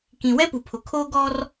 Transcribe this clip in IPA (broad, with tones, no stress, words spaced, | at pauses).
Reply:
kĩ˨wɛ˦pu˨pʰʊ˨ kʰoː˦ɡɔ˦r